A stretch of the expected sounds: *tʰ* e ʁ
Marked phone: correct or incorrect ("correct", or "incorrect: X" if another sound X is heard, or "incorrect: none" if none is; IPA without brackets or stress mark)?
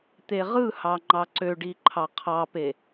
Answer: incorrect: t̪